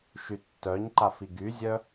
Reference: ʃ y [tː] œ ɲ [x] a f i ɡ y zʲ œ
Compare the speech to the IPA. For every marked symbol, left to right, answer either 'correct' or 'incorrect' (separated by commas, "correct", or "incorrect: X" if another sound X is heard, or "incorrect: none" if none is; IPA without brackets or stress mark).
correct, incorrect: ǃ